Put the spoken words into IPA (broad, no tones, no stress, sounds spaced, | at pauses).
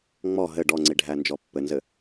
ŋ͡m ɔ ɦ ɘ ɖ ɔ ŋ͡ǀ i ɖʱ æ n d͡ʒ ɔ pː ɘ n z ɘ